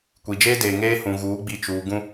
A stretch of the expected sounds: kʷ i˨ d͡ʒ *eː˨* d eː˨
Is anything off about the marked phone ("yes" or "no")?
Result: yes